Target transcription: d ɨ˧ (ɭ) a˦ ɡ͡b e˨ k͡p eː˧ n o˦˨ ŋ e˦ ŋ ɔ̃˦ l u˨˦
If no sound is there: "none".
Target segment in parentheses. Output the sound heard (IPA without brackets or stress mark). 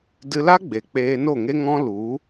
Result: l